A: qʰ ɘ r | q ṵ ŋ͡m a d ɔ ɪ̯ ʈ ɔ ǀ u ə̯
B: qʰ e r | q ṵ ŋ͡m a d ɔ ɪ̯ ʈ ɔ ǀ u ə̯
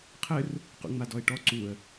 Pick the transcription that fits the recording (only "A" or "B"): A